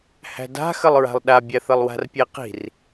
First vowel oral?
yes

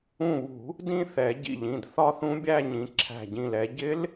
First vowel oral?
no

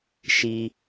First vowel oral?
yes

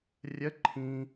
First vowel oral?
yes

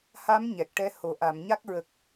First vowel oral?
yes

